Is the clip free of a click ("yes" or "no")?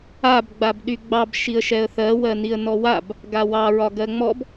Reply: yes